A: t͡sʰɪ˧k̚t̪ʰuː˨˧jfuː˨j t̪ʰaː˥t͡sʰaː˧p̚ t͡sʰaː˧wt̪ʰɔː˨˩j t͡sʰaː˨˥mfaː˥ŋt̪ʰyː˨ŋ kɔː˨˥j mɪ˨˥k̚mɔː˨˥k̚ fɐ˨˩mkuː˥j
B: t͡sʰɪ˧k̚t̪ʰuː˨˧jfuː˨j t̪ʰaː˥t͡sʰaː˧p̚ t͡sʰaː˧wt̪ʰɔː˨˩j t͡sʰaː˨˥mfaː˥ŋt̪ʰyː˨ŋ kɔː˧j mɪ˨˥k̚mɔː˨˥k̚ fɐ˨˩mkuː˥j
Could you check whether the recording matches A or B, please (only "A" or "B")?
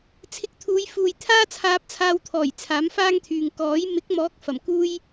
A